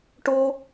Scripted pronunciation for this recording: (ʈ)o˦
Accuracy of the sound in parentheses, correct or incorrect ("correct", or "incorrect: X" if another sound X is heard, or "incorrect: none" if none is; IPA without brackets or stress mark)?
correct